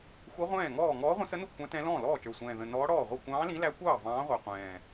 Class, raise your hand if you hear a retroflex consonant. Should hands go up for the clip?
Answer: yes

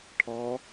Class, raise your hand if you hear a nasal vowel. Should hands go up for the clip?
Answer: no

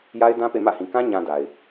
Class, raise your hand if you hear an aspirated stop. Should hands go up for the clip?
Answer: no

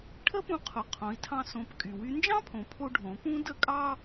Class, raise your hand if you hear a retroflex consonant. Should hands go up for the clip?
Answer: yes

